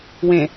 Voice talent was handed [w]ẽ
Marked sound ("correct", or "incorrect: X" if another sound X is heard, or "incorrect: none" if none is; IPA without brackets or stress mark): correct